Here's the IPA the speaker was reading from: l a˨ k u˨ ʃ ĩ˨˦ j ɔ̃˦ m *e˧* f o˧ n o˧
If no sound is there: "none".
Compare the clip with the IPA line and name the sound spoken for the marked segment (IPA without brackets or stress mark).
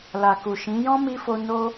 i˧